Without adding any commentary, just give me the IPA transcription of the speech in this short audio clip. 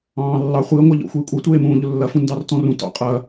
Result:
ɑ̃ː lː ɑ χʷ i ə̯ ŋʷ a ʎ ɔ̰ xʷ iː kʷʼ i tʷ eː m ũː ʎ ʊ lː ɐ f ũ n d ɑ r t ɔ̃ r ũ t ɑ̰ qʼ ɐ

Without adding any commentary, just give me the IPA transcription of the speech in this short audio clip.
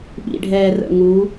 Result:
ɓ ḭ ɖʱ ɛ r ə̰ ŋ u

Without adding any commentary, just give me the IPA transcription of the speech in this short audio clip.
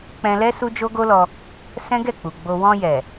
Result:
k͡p ɛ̃˧ l ɛ˦ s u˦ d͡ʒ o˦ ɡ o˦ l ɔ˧ | s ɛ̃˦ ɡ ɛ˦˨ k͡p u˨ ɡ͡b o˧ w ɔ̃˧ j ɛ˨

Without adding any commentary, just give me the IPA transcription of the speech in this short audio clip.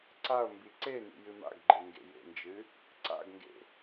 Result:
ǀ a o̯ m b i ǀ e n ḭ j ɨ m a̰ ɡ ɡ͡ǃ e ŋ ɡ ḛ j ḛ n d͡ʒ ɨ | ǀ a̰ ɡ ŋ ɡ ḛ

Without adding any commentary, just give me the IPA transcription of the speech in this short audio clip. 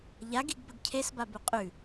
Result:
ʎ a ɡ i ɡ b ə ɡ cʰ e s b a b ʉ qʼ ʉ

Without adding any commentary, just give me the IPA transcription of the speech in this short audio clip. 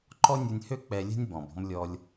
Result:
ǃ ɔ˥ nʲ o˧ nʲ h ø˥ k͡p ɛ˧ lʲ ɛ̤˥ nʲ b ɔ̃˩ b ɔ̤˧ m lʲ ɔ˧ lʲ

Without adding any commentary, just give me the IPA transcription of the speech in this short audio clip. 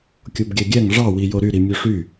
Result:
kʲ o b ɡʲ æ ɡʲ æ ŋ ʐ ɑ w i j o ɾ y ɾ i mʲ o ʂ y

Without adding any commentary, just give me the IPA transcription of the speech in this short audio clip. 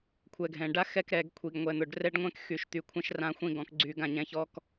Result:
kʷʰ ɛ˨ ɡʱ ɛ̃˨ ɖ a˦ x ɛ˦ k ɾ ɛ˨ ɡ kʷʰ i˨ ɡ ŋʷ ɛ˨ n̪ ʊ˨ ɖ r ɛ˦ ɖ ŋʷ ɛ̃˦ k x y˨ ʃ t̪ y˨ kʷʰ ɛ̃˦ ʃ r ã˦ xʷ ĩ˦ ɡ ɔ̃˨ k ɡ͡ǀ y˨ ɡ ã˨ ɲ ɛ̃˨ ç ɔ˨ k

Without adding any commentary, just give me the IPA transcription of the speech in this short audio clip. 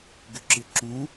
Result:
ɡ ʏ ǁ ɪ ǁ ũ

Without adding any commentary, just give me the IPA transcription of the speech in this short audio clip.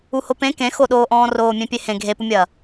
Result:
u h o p ẽ k ẽ x o ɗ oː ʔ ɔ̃ː r oː mʲ ẽ pʲ e h ẽ ɡʱ e p u mʲ ɐː

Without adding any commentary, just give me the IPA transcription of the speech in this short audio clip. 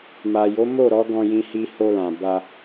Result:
m a˨ j o˨˦ m o˦˨ ɾ ɔ˨˦ ɡ ɔ̃˧ j ĩ˧ h i˧ h o˧ l ã˨ b a˧

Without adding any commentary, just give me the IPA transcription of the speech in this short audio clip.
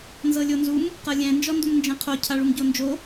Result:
n z ɤ lʲ o n z u m | q ɤ lʲ ɛ̃ n d͡ʒ ɔ n d u m n d͡ʒ ɛ̃ qʰ o cʰ a ɭ u m ɟ o n d͡ʒ o

